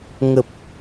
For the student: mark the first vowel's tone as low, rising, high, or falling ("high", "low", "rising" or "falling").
low